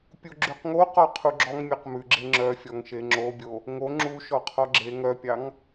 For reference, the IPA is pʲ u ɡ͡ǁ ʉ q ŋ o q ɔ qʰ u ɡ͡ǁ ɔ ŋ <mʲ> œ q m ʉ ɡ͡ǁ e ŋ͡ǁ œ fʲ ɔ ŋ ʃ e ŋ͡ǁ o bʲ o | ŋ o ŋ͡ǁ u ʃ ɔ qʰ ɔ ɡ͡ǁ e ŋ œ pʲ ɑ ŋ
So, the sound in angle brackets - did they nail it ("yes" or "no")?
yes